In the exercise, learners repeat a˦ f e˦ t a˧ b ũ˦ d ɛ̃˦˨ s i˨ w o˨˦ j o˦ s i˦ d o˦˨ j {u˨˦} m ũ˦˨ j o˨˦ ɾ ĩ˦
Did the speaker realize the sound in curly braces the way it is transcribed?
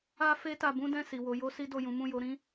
no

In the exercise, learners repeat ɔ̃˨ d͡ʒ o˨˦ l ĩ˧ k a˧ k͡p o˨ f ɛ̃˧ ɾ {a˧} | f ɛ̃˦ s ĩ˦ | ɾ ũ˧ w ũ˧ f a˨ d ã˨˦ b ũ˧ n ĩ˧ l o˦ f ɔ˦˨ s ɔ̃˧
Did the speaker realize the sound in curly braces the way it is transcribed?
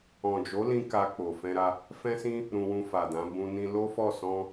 yes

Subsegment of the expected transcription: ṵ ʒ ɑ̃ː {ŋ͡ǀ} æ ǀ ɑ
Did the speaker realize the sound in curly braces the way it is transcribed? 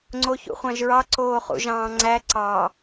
yes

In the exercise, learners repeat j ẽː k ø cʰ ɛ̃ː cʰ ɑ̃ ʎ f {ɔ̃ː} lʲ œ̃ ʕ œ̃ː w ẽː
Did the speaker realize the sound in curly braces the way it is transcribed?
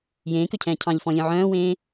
no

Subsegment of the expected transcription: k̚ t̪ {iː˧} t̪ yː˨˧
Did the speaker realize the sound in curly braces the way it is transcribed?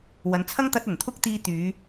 yes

